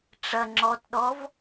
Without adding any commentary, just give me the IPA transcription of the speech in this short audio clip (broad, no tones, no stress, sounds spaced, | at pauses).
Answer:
ʈ͡ʂ ɐ ŋ͡ǁ ɔ t ɗ ɔ v